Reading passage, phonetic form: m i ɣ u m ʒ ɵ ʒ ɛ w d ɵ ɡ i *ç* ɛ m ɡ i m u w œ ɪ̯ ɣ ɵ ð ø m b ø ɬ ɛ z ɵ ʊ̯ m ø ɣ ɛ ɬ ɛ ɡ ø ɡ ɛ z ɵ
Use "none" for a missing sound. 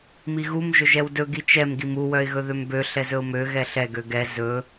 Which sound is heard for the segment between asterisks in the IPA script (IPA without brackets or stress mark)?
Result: t͡ʃ